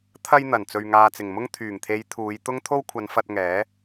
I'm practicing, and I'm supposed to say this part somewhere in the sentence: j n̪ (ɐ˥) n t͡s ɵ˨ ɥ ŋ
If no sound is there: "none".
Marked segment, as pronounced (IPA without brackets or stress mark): ɐ˨˩